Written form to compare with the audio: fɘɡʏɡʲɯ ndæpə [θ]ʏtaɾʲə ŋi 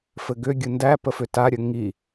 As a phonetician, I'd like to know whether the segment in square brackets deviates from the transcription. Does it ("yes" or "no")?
yes